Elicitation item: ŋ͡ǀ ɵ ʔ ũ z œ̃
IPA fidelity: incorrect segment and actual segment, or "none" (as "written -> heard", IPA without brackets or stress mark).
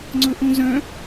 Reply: none